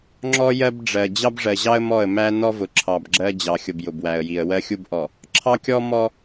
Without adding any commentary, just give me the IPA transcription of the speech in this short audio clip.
ŋ͡ǁɔ˦ jɜ˦bɖ͡ʐɜ˨ d͡ʑɑ˦bʐɜ˨ʑɑ˦ə̯ mɔ˦˨ə̯ mæ˦ nɔ˦vʊ˨ǁʰɑ˨b ɡ͡ǁɜ˦d͡ʑɑ˨xʲʊ˨b jʊ˨bwæ˨ə̯ji˨ə̯ wɜ˦xʲu˦b ʔɔ˨ | ǁʰɑ˦kʲɔ˦ mɔ˦

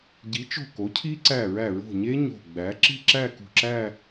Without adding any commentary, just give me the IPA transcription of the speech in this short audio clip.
ɟi˩˥t͡ʃo̤˧˩ ko˩˥cʰi˦˥ ǀæ˧˩ɹæ˧˩ɹo̤˧˩ɲe˦˥ ɲo̤˧˩ɡ͡bæ˩˥ ǁi̤˥˧ǁæ˥˧ kṳ˧˩ǁæ˥˧

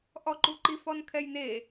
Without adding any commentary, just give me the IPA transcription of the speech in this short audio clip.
ʔɔǃuǃif ɔnkʰɛjne

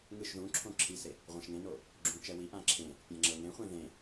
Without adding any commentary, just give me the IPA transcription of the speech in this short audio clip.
ŋɯʃ ðũǁʰõ ǁʰise | ʁʷãʃŋẽno | ɡ͡ǁũːt͡ʃɛwiʔã ǁʰẽ | pʲãŋ͡ǁɤŋẽχʷẽ ðẽ

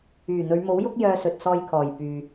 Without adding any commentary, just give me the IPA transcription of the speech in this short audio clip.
yː˨˩n̪ɵ˨˧ɥmo˨˥wjʊ˥k̚ jœː˧sɵ˨t̚sɔː˧jkʰɔː˨˩j pyː˨

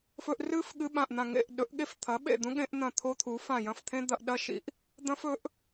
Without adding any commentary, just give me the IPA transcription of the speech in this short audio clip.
fɵ˦ʔ rɨ˦f ɠɨ˦ɓã˦˨ʔn̪ã˦˨ ŋḛ˦˨ʔ ɗɵ˨˥ʔɠe˦f t̪ʰɐ˨˥ɓḛ˦˨d̪ũ˦ɠẽ˦ʔ n̪ɐ̃˦˨t̪ʰo˦t̪ʰu˨˥ fã˦˨ jɐ̃˦˨ft̪ʰẽ˦ d̪ɐ˦ʔ ɗɐ˦ ʃḭ˨˥ʔ | d̪ɐ̃˦fɵ˨˥ʔ

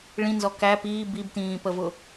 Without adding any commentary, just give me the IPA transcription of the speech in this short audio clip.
ɭĩnzɔ kæ piː bibtĩːpəvʊ

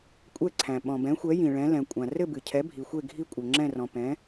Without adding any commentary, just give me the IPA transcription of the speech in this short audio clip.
kʷʼɛ˥˨ǀʰæ̃˩ ɓɔ̃˩bɛ̃˩˥xʷɛ˩˥ jĩ˩ɭɛ̃˩˥ lɛ̃˩kʷʼã˩ rɘ˥˨bɨ˩cʰɛ˩˥ bʱi˩xʷe˥˨ ɡʱi˥˨kʷʼɘ˩ŋ͡ǁɛ̃˥˨rɔ̃˩ pɛ̃˩˥

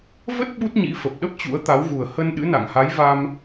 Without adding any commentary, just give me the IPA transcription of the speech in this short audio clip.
və˦˥t̚ ɓu˦˥t̚ɲḭ˧˥ fə˨˩p̚ɗə˦˥p̚ t͡ɕṵ˧˥ə̯t̪a˨˦wɣu˨˩ə̯ hə˧nɗɨ̰˧˥ na̰˧˨ŋha˨˦j va˧m

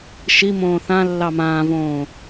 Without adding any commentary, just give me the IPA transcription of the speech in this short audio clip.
ʃimõː θãlːɑ mãːvõː

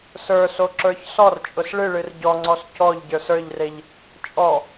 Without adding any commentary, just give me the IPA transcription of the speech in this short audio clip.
sə˞so ǁə˞çsɔr t͡ʃʼʊsɭɨ ɭɨrɟɔŋ͡ǀɔs cɔʎɟə˞s ə˞ʎreʎ | t͡ʃʼɔ

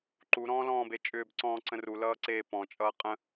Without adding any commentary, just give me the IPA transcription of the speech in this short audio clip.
ǃu ɾɔ̃ːlɔ̃ːbet͡ʃʼʏːb ǀɔ̃ːǀə̃ru lʌːǀeːpɔ̃ t͡ʃʼʌːqʼə̃

